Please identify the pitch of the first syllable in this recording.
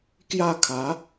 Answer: falling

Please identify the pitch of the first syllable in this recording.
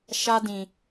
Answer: high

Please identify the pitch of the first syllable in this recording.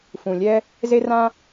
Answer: low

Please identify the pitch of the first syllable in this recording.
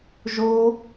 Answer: high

